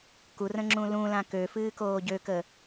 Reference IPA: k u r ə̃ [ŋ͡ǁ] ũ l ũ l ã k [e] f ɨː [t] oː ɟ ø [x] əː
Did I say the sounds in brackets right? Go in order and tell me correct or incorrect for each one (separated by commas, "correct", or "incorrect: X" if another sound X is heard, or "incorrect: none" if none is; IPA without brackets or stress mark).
correct, incorrect: ø, incorrect: k, incorrect: k